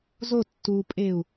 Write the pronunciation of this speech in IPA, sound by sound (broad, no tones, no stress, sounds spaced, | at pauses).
z o tː u pʼ e u̯